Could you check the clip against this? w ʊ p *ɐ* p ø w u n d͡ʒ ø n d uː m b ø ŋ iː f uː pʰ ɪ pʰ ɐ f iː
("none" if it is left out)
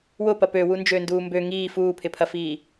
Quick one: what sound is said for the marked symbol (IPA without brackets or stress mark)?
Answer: ɐ